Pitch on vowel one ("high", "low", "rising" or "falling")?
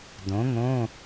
rising